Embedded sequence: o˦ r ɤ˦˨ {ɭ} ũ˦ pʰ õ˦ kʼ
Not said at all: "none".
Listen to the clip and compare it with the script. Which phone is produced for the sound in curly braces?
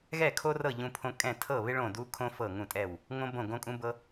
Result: ʎ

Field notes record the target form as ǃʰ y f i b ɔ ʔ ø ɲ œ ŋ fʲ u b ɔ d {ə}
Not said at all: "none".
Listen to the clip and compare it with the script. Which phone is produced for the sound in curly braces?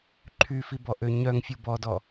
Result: ɔ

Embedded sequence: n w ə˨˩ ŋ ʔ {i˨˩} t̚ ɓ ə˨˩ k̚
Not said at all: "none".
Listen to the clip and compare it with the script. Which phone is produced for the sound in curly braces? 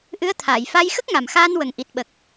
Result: i˨˩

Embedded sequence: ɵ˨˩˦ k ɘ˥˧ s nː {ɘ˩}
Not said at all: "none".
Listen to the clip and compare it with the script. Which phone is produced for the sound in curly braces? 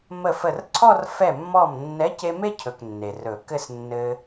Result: ɘ˧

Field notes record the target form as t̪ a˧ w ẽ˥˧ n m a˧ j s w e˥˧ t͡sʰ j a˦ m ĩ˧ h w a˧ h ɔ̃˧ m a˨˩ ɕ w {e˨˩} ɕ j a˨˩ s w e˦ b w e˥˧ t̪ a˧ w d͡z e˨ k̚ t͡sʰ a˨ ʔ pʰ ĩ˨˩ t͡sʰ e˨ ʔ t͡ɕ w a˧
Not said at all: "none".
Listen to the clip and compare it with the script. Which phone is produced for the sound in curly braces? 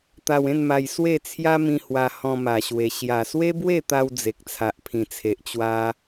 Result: e˨˩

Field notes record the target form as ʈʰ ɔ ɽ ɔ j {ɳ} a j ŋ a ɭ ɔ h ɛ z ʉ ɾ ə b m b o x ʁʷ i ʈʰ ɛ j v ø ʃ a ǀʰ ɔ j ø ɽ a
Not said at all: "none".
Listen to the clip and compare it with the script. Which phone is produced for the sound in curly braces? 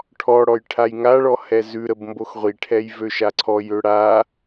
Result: ʈʰ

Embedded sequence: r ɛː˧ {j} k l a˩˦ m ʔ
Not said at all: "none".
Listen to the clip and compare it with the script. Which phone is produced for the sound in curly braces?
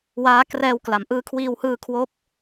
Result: w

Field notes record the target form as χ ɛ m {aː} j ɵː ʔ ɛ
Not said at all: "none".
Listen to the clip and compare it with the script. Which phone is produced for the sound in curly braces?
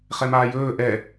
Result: aː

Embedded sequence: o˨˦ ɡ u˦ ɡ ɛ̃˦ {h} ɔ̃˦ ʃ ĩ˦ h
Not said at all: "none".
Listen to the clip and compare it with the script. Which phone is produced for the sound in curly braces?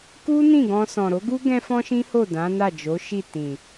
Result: f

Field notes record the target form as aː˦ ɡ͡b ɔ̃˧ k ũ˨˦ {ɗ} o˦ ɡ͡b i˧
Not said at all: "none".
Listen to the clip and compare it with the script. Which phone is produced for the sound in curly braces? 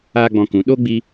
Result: ɗ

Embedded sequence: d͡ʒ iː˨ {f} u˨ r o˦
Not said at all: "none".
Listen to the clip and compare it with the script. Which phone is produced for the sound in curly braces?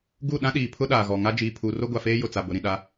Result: pʰ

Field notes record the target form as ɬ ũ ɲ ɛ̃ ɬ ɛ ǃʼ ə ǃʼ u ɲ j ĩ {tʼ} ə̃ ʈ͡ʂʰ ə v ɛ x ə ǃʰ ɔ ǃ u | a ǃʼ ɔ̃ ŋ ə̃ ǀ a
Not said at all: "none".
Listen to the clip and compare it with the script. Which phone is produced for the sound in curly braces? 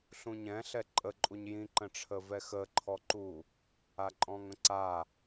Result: ǃ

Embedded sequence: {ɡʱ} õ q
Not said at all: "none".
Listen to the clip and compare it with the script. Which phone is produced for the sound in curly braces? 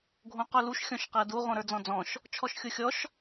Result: ɡʱ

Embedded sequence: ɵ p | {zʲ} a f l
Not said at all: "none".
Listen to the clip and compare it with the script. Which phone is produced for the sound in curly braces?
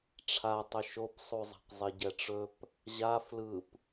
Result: ʑ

